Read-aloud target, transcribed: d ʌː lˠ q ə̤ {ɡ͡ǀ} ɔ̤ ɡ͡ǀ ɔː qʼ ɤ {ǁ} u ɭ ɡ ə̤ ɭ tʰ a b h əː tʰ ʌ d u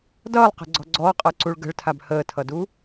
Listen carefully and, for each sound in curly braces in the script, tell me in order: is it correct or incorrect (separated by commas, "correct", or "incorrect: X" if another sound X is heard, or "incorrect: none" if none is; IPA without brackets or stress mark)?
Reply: correct, incorrect: ǀ